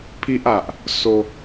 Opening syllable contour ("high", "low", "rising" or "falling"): high